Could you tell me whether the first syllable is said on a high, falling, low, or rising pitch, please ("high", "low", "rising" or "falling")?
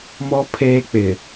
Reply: high